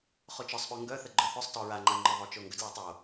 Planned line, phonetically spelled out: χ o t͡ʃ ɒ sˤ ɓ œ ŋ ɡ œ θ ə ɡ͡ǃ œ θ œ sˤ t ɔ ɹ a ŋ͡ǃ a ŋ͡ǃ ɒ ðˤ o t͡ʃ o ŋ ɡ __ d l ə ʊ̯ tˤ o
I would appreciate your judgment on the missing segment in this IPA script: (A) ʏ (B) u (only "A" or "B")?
A